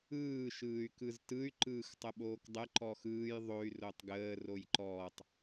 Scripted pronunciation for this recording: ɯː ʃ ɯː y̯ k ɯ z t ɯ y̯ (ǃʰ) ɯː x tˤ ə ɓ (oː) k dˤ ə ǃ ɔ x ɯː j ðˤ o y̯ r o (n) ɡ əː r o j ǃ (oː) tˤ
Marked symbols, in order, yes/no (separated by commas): no, yes, no, no